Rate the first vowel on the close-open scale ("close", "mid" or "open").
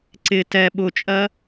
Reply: close